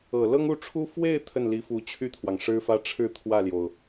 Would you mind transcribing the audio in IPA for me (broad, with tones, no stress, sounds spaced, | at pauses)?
ɤ˨˩ l ɤ˥ ŋ u˥˩ ʈ͡ʂʰ u˥ f w e˥˧ ɪ̯ t̪ʰ ə˥˩ n l i˧˥ f u˧˥ t͡ɕʰ y˥˩ t̪ʰ w ɑ˩ ŋ ʂ ɻ̩˥ f ä˥ ʈ͡ʂʰ ɻ̩˥˧ t̪ʰ w ä˥˩ l j o˩ ʊ̯